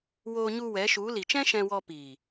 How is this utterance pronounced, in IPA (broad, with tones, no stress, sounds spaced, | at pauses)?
w oː˧ ɲ u˧ w ɛ˨˦ ʃ u˨˦ l i˨ t͡ʃ ɛ̃˦ ʃ ɛ̃˧ w ɔ˧ p iː˨